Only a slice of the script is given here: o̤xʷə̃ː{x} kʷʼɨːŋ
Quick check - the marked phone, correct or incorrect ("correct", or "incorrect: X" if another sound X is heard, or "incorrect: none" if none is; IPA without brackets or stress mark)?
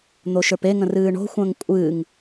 incorrect: ŋ